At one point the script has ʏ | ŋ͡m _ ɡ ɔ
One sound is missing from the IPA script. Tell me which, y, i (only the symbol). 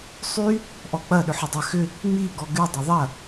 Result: i